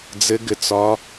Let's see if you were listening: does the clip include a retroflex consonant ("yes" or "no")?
no